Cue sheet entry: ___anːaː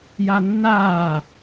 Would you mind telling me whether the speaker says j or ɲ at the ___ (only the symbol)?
j